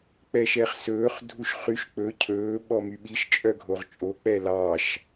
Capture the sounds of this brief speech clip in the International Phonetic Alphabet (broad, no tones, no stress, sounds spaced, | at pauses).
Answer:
k͡p ɛ ʃ ɛ χ s ɵː χ dʱ u ʃ χ y ʃ k͡p ɵ cʰ ɵː ɓ ɔ m y ɓ i ʃ t͡ʃʼ œ ɡʱ o ʁ t͡ʃʼ o k͡p ɛ l ɑ ʃ